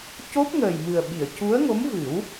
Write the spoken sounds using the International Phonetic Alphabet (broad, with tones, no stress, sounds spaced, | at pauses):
c o˦˥ p̚ ŋ əː˨˩ j m ɨ˨˩ ə̯ ɓ i˨˩˨ ə̯ c u˧˥ ə̯ ŋ o˧˥ m v ɨ˨˩˦ w